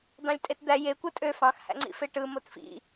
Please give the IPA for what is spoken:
d̪ɑ̃lʲtʼetd̪æ je kʷɯtʼø fɑ̃xhæ̰ŋ͡ǀḭfe ʈɯ motfḭ

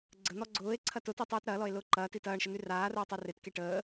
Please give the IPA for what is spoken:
ɡ͡ǀən̪ɔ ɡ͡ǀʊːe̯ ǀʰɐtʊti tˤiːtɾɐːlɔe̯ lʊːǃɐːti tɐːɳʃə n̪yraːrʊː tˤeretke ʈəː

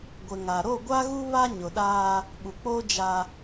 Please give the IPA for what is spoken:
ɡʷɪ˨ŋa˨ ɾo˦˨ɡʷa˦ɣu˦ βa˦ ɲʊ˨ɗaː˦ | ɓu˨k͡poː˦ d͡ʒa˦

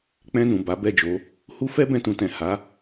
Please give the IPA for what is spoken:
k͡pɛ̃˧nũ˨ ba˨˦bɛ˦˨d͡ʒo˨˦ | hu˦ fɛ˦bɛ̃˧tũ˨tɛ̃˨ ha˨˦

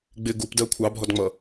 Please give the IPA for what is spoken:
ɡ͡bɪ ɡupdɜ kʷʰɑbʱɔdŋ͡mʌ

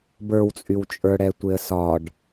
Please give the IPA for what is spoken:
bə˞wt͡sʼyw t͡ʃʼə˞ɽɛtʷeə̯sɒɖ

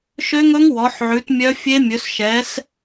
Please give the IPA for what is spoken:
ʃø˦˥ŋɵ˦˥ŋ wɔ˨˦ħʕʉ˨˦tmʲœ˦˥ fʲe˦˥mʲɵ˨˦s ʃɛ˨˦s

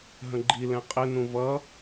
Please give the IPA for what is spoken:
ɦə̃ɡ͡ǃi lɛ̃qʼɪnũ vʌ

